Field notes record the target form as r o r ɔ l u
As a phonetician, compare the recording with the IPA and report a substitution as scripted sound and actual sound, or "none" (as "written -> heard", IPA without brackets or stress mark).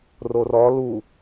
none